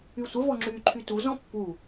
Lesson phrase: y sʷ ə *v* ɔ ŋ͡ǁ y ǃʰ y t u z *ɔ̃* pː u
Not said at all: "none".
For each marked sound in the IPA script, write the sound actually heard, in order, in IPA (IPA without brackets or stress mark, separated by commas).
v, ɔ̃